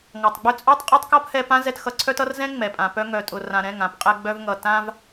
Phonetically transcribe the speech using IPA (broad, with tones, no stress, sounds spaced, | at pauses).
ŋ ɔ˨ tˤ ɡ͡b œ˧ t͡sʼ ɔ˦ tˤ qʼ ʌ˦ tˤ k ɔ˦ p h ɛ˧ p ã˦ z ɛ˧ t x ʌ˧ ǀʰ œ˦ t ʌ˦ r z ɛ̃˦ ŋ͡m ɛ˨ pʼ ã˨ p œ˧ ŋ œ˨ tʼ ʊ˨ r ã˨ ɾ ɛ̃˦˨ ŋ ã˧ p qʼ ɛ˧ ɡ͡b œ˧ v ŋ ʌ˨ t ã˧ v